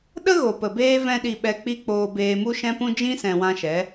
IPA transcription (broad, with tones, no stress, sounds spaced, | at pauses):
ɗ ə˦ ɣ o˨ p ə˨ b eː˦ v ɛ̃˦ ɗ i˧ ɓ ɛ˧ k͡p i˦ k͡p oː˧ b eː˧ m u˦ ʃ ɛ̃˦ p ũ˦ d͡ʒ ĩ˦ s ɛ̃˨ w ã˧ ʃ ɛ˨˦